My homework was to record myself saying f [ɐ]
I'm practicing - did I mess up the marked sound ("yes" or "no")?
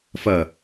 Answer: no